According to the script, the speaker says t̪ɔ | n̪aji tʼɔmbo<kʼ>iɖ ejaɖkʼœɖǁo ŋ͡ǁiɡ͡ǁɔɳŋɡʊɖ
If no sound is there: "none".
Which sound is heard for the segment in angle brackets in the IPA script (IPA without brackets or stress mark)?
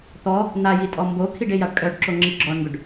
kʰ